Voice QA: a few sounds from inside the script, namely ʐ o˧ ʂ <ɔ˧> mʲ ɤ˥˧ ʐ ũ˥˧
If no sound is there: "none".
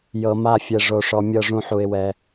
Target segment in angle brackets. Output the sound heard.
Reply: ɔ˧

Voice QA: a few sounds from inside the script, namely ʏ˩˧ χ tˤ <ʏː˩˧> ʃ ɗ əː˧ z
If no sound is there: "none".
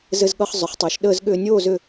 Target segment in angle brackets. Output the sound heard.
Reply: ʏː˩˧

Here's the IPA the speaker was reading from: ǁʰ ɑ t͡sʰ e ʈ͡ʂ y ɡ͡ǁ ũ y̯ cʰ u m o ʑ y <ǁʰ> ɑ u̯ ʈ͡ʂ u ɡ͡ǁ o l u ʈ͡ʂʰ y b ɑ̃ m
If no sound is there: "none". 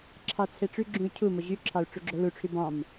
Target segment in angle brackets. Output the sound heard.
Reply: ǁʰ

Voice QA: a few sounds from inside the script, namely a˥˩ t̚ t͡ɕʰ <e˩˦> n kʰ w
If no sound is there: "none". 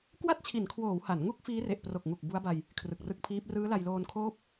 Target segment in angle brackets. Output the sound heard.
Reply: i˩˦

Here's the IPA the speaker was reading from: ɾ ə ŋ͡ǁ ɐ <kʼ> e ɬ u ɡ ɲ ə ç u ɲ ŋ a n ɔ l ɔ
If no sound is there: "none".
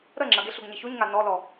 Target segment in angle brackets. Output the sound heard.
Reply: ɡ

